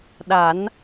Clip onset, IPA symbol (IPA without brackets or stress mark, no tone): ɗ